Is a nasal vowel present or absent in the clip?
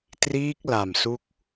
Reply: absent